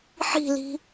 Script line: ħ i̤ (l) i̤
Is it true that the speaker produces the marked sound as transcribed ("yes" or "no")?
yes